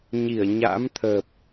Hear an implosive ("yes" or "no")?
no